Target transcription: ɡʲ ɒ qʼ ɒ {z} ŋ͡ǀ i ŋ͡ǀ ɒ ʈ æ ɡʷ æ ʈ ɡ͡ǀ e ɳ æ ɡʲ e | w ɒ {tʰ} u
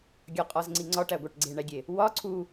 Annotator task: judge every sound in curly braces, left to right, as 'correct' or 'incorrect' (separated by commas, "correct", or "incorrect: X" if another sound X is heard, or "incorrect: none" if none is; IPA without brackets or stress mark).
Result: correct, incorrect: ǀʰ